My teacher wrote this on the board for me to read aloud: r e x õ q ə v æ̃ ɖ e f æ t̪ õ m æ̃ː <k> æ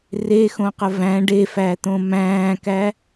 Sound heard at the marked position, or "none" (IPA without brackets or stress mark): k